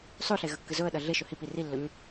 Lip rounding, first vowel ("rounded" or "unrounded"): rounded